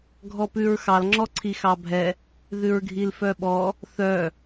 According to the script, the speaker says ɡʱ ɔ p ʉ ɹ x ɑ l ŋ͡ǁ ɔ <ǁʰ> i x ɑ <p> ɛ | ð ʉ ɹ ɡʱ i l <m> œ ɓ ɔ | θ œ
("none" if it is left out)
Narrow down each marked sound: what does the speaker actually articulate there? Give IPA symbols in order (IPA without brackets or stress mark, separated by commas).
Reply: ǀʰ, bʱ, f